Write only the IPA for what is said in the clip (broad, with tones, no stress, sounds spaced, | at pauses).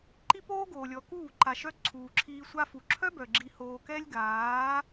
ǃ i˦ p oː˦ ɡ oː˨ lʲ ɔ˨ k uː˦˨ ǃ a˨ ʃ œ˧ ǀʰ uː˨ ǁʰ iː˧ sʷ a˧ f u˨ ǁʰ œ˦ b œ˨ ɡ͡ǁ i˧ h oː˧ k ɛ˦ lʲ ɡ aː˨˦